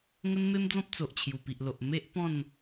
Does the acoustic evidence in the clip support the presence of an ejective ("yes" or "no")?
no